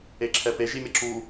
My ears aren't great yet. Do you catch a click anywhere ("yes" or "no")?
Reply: yes